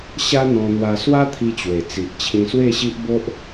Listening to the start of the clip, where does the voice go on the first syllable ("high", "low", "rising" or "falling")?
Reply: high